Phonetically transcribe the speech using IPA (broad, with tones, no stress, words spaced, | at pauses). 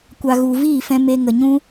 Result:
kʷa˨ ɣu˨viː˦˨fɛ̃˧ me˧ŋə˨ɲũ˦